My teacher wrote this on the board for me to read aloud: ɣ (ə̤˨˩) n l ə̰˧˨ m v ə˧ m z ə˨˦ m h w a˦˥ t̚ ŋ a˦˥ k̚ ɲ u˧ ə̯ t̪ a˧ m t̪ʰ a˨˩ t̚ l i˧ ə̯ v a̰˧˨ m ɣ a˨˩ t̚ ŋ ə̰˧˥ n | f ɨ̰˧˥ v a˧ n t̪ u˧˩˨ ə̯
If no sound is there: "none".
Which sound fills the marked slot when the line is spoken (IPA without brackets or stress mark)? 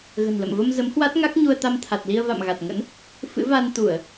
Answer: ə̤˨˩